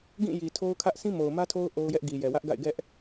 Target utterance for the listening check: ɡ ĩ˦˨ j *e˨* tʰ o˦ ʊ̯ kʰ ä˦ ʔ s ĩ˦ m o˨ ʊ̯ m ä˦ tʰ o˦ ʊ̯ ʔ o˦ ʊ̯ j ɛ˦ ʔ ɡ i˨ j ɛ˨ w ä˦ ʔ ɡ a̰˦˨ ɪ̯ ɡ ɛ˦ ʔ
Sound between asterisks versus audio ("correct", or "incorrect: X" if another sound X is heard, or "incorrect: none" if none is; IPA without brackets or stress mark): incorrect: i˨